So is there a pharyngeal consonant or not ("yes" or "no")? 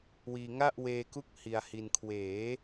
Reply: no